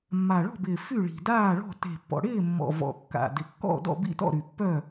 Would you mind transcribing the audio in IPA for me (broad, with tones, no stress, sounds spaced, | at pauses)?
mː a˨˩ ɭ ɔ̤˥˨ b ɪː˨˩ f y˥˨ ɭ i̤˨˩ d aː˥˨ ɭ ɔ̤˥˨ t e̤˨˩ pː ɔ̰˨˩ ɽ ɪː˥˨ mː ɔ̰˨˩ v ɔ̰˨˩ kː a̰˨˩ d ɪ˨˩ kː ɔ̰˥˨ d ɔ̰˥˨ b ḭ˥˨ t ɔ̰˥˨ ɾ y˨˩ pː œ˥˨